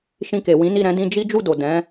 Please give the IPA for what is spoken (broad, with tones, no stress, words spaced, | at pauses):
ʃĩ˧ke˨wĩ˨˦ni˦˨ ɾɛ̃˧dĩ˧ d͡ʒi˦ d͡ʒu˦˨do˨ dɛ̃˨˦